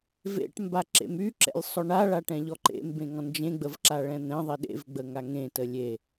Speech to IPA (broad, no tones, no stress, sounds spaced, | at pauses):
v ḛ ʈ m b a ǁ ḛ m y ǁ ɛ̰ lʲ sˤ ʊ ɳ a ɭ a ʈ ɛ̃ ʎ ɔ ǃ ḛ m b ẽ ŋ ɔ̃ n d͡ʒ ẽ ɡ͡b ə v ǁ a ɭ ɛ̃ n̪ ɛ̃ ðˤ i ɗ ḛ v ɡ͡b ə ŋ a ŋ ẽ t ə lʲ e